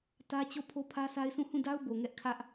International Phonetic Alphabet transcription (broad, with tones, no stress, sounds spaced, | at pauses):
t ä˦ t͡ɕ o˦˨ pʰ o˦ pʰ ä˦ sʰ a˦ ɪ̯ s ũ˦˨ h ũ˦˨ d a˦ ʊ̯ b o˨ ŋ ɛ˦ ʔ kʰ ä˦ ʔ